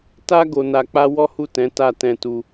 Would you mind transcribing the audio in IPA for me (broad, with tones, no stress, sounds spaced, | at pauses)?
t a˧ ɡ o˧ n a˧ k͡p a˦ w ɔ˦ h u˦˨ t ɛ̃˨˦ t a˦˨ t ɛ̃˧ t u˧